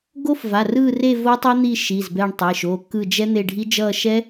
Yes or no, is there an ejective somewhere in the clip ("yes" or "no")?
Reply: no